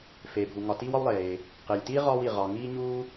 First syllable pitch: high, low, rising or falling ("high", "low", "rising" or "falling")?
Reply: low